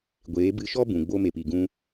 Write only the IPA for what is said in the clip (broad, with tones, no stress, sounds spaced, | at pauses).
ɡʷ eː˨˦ b ɨ˧ ʃ ɔ˦ b ũ˨ ɡ͡b o˧ m e˨ p i˨ ɡ ũ˧